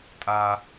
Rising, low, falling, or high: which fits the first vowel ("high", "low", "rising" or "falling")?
high